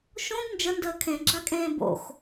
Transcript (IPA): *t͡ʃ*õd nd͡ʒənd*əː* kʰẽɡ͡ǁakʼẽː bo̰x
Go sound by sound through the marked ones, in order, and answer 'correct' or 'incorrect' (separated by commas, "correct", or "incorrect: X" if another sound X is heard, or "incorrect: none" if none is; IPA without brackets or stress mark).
incorrect: ʃ, correct